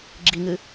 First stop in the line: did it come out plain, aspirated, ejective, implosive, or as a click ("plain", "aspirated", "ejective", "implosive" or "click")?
click